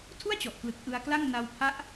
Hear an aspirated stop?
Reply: yes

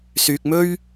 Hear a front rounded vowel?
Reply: yes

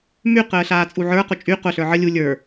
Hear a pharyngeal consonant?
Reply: yes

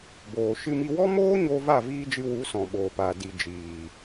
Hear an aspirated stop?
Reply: no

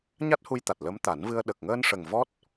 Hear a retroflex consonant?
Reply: yes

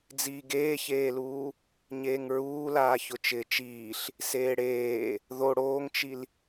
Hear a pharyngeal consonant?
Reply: no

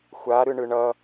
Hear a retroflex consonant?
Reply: yes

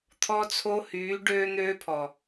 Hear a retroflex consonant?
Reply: yes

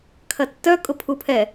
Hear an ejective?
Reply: yes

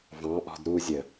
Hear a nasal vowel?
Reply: yes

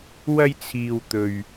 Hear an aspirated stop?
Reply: yes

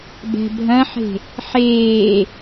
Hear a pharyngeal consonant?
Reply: yes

